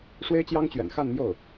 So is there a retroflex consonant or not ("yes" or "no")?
yes